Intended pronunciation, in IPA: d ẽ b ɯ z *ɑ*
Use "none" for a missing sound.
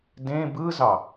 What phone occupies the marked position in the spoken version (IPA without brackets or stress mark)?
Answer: ɑ